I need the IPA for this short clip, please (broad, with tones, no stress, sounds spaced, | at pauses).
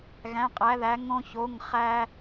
ɣ æ̃˩˧˩ qʼ æ˩˧ ð æ˩˧ ŋ õ˧ ç o˩˧˩ ŋ χ æ˧